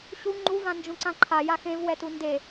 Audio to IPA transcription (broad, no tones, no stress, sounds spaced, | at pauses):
ɕ u ŋ͡ǃ u v ã n d͡ʒ ũ ǀ ã ǃʰ a j a x ẽ v w ɛ t u n d e